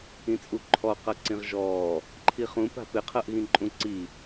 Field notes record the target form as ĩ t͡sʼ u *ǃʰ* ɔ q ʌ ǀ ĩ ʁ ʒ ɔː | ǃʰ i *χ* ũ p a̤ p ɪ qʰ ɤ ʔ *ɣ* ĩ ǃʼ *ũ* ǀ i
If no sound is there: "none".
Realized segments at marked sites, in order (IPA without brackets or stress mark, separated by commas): ǃʰ, χ, ɣ, ũ